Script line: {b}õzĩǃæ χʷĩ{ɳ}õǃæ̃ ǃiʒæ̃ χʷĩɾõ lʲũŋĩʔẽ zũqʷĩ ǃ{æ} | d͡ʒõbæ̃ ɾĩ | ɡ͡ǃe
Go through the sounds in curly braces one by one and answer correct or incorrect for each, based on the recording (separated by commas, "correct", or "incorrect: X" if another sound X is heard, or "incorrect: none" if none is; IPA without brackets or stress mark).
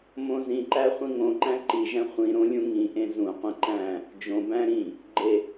incorrect: m, incorrect: ŋ, incorrect: æ̃